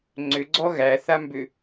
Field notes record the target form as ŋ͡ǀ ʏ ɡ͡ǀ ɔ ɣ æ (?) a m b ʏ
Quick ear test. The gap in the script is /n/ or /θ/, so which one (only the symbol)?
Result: θ